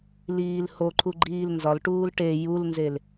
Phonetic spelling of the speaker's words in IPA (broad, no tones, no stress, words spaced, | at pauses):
liːlhoǃʰu ɡ͡ǃiːlnzɒlʈuːl ʈe julnzel